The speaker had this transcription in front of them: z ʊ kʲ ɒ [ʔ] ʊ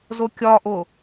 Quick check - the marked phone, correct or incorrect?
correct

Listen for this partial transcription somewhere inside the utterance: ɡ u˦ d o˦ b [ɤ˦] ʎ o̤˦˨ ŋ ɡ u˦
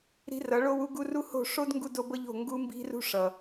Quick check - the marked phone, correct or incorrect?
correct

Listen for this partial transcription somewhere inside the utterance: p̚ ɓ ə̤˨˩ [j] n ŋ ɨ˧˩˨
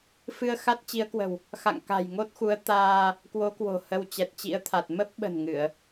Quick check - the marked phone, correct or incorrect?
incorrect: none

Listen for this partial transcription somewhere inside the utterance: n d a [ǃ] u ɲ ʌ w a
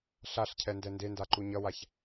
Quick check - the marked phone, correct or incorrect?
correct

